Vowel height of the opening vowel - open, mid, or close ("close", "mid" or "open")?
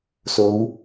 mid